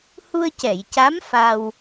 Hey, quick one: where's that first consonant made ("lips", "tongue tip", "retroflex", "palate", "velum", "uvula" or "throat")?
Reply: throat